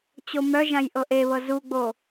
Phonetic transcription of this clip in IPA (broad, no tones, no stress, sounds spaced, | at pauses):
t͡ɕ o m œ ʒ ã j ʔ ɤ ʔ e β ɤ z u ɡ͡b o